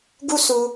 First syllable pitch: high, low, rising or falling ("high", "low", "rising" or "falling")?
high